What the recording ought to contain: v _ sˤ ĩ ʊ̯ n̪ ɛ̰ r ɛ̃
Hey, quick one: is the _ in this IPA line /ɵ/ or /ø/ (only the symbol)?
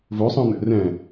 ɵ